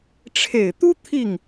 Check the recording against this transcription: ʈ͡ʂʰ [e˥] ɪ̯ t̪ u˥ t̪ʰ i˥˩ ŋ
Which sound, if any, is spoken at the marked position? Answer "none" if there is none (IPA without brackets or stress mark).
e˨˩